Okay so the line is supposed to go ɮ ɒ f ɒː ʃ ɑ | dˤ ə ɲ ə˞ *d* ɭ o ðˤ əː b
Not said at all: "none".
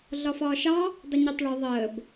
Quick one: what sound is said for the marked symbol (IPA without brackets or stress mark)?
tˤ